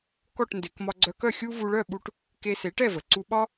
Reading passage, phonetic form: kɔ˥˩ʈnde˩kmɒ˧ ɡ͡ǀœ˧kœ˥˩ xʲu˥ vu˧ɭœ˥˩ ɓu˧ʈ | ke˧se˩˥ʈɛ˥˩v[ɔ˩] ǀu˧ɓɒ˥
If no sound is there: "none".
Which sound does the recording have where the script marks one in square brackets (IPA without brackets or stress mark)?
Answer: ə˩